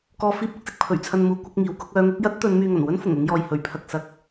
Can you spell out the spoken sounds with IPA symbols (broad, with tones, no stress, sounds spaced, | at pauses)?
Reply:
k ɔː˧ f iː˥ p̚ ʊ˥ k̚ s ɪ˧ k̚ pʰ ɵ˨˩ ɥ t͡sʰ ɐ˧ n m uː˨˥ kʷ ɐ˥ k̚ ŋ iː˨˧ w k ʊ˥ k̚ œː˨˧ ŋ ʊ˨˥ k̚ j ɐ˥ t̚ t̪ ɵ˨˧ n m yː˧ ŋ ɐ˨˩ n w ɵ˥ n f ʊ˨˩ ŋ ʊ˥ ŋ j ɔː˧ j h ɵ˨˥ ɥ pʰ ɐ˧ k̚ s ɐ˥ k̚